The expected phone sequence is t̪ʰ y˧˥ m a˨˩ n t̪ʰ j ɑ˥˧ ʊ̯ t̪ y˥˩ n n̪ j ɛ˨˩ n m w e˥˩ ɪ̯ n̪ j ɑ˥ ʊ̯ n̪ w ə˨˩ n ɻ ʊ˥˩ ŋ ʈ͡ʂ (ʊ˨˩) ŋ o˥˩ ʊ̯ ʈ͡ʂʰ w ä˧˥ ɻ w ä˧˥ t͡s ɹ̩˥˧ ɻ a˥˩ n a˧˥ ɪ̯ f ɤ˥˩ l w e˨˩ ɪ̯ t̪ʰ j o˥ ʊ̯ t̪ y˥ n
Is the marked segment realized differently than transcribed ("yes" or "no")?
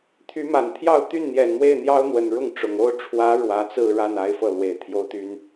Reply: no